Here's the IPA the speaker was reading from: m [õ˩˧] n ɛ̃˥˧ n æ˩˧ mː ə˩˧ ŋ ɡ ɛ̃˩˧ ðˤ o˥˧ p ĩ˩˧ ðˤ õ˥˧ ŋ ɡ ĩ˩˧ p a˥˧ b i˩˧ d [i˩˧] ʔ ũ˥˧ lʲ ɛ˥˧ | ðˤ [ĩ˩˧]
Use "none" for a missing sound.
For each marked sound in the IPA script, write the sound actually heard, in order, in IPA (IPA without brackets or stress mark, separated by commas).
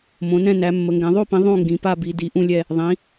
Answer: õ˩˧, i˩˧, ĩ˩˧